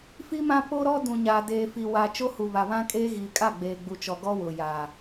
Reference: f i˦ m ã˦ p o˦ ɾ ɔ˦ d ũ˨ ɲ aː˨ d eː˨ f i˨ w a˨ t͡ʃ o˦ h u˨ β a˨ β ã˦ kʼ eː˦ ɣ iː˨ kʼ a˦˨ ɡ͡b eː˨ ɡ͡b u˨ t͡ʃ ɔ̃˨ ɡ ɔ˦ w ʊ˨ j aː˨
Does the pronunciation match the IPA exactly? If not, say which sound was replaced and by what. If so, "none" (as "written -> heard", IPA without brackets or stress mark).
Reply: ɔ̃˨ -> ɔ˨